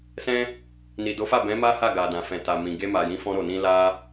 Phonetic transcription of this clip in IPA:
s ɛ̃˦ | n i˨ d o˨˦ f a˦˨ b ɛ̃˨˦ m a˦ h a˦˨ ɡ a˨ d ã˨ f ɛ̃˨ t a˨ m ĩ˨ ɡ e˧ m a˨ j ĩ˨˦ f ɔ̃˧ ɾ o˨ n ĩ˧ l a˦

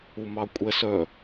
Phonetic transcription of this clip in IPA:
u m ɑ kʷʼ ɛ s œ

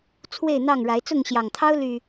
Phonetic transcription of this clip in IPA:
t͡sʰ w e˥˨ ɪ̯ n̪ ɑ˥˨ ŋ ɻ a˨˦ ɪ̯ t͡s ʊ˥˨ ŋ ɕ j ɑ˨˩ ŋ t̪ʰ ɑ˦ ʊ̯ l y˨˩

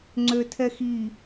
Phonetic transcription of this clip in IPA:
ŋ͡ǀ ø tʰ ɛ x i

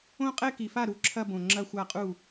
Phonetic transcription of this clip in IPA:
õ˥˧ qʼ ɛ˥˧ k i˨˩ f a˥˩ ɾ u˥˩ ǁʰ ɐ˥˧ b õ˨˩ ŋ͡ǁ ɐ˥˧ xʷ a˥˩ qʼ u˥˩

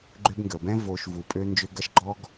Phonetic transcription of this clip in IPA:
ɡ͡ǃ ø˦ b ŋ ɡ əː˨ b ɛ̃˦ v oː˧ ʃ v u˨ pʼ ø˦ n d͡ʒ ø˧ ɡ ɐ˦ ʃ ɡ͡ǃ ɔ˦ ɡ

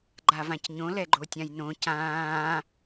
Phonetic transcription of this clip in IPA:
ɡ͡ǃ a v ã c ɲ õ l ɛ ɡ͡ǃ o tʲ ã j n õ c ãː

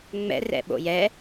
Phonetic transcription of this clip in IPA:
ŋ͡m ɛ̰ r ɛ̰ ɓ o̰ j ɛ

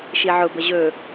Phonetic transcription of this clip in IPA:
ʃ i ʕ ʊ b ə ʑ ɵ

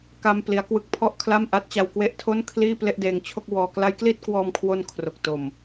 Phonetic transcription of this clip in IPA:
k a˧ m p l i˦˥ a̯ k w ɯ˦˥ k̚ pʰ ɔ˥˩ ʔ kʰ l a˥˩ m ʔ a˦˥ t̚ t͡ɕ a˧ w k w e˦˥ ʔ tʰ o˥˩ n kʰ l iː˥˩ p l e˥˩ ʔ d eː˧ ŋ t͡ɕʰ o˥˩ k̚ w ɔː˧ k l a˦˥ j k l i˥˩ t̚ k w ɔː˧ m kʰ w o˧ n kʰ r o˨˩ k̚ t o˨˩ m

